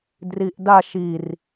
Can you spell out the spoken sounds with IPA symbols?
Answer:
d r i ʔ d a ʃ i r

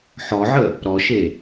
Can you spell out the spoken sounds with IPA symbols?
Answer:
ħ ɔ ʕ ə | ɾ ɔ ʃ e

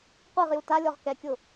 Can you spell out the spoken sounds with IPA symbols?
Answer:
qʷ i ʁ j u t a lʲ ɔ ʁ k ɛ kʲ ʊ

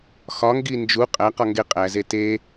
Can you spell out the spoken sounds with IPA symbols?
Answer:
x ɒ ŋ ɡ i n d͡ʒ u qʼ æ q ɒ ŋ ɡ e qʼ æ z e t e

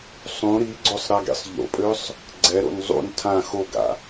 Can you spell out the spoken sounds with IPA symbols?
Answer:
sˤ ũ ɾ i ɡ͡ǀ o sˤ ɾ a ɡ ḭ sˤ ʎ o̰ pʼ ø sˤ | ɡ͡ǀ ɛ ɾ o̰ n zˤ ṵ n tʰ ã x o ɡ a̰

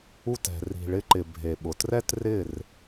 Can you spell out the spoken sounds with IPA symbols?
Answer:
u˧ t ɛ̤˨ r i̤˨ ɭ ɪ˧ ǃ ɪ˨ bʱ e˨ ɓ ʊ˨ t r ɛ˦ t r ɪ˦˨ r

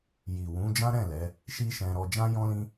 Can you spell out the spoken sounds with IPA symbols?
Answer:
j i˨ w ũ˨˦ d͡ʒ ã˦ ɾ ɛ̃˦˨ l ɛ˨˦ | ʃ i˦ ʃ ɛ̃˧ ɾ ɔ˧ d͡ʒ ã˦ j ɔ̃˦ l ĩ˦

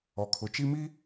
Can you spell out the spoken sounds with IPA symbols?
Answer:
ɔ˨ kʰ ʊ˨ t͡ʃ i˦ m i˦

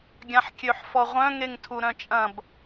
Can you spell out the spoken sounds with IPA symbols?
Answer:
ɡʲ ã ħ kʲ ø ħ f ɔ ʁʷ œ̃ ŋ e ŋ tʰ u ɾ œ̃ t͡ʃʼ ɐ̃ b

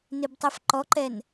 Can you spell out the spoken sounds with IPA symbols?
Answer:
n ɪ b tˤ ɛ f ǃ ɔ ǃ ɛ n

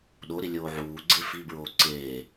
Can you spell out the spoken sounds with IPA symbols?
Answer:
ɗ o ɾ i lʲ oː ʕ uː ɡ͡ǀ e f i b ɹ oː ǀ eː

